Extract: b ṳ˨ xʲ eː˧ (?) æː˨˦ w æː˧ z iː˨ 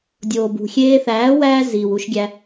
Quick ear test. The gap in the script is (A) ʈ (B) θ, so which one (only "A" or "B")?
B